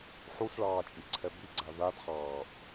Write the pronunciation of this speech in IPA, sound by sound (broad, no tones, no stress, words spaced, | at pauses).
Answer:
ħusɭɑːt͡ʃʼiǀʰɛ biɡ͡ǀa ðad χɑːʔ